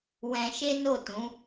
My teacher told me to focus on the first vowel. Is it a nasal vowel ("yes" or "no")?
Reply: yes